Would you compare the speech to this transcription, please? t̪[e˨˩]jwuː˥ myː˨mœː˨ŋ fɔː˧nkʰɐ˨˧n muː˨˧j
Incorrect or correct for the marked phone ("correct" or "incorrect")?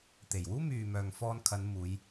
correct